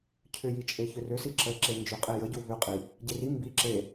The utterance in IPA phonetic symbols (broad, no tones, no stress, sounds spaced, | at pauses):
cʰ ʏ j i t͡ʃʼ e ç ʏ r ʏ s i ǁ ə ǁ e n d͡ʒ ʏ qʼ e j ə ɟ u β ʏ qʼ i | ɟ e r i m b i ǁ e